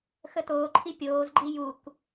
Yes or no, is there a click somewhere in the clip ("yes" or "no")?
yes